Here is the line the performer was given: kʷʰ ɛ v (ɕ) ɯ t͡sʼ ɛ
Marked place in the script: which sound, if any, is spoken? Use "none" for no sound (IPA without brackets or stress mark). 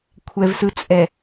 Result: s